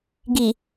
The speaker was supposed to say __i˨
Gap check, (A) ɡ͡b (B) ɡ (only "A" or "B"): B